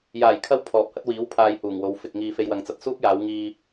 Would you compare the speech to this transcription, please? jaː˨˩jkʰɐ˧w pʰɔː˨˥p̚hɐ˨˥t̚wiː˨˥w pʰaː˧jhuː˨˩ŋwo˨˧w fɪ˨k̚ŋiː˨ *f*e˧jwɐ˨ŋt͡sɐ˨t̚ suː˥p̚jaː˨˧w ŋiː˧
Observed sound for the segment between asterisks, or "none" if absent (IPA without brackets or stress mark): f